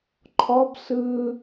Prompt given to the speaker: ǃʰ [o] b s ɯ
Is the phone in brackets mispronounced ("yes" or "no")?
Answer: yes